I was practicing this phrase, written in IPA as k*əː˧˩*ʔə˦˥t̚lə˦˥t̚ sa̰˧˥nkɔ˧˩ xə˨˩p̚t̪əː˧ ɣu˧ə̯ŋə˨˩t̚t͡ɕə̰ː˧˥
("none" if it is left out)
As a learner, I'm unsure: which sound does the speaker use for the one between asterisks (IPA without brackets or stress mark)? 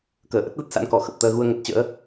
əː˧˩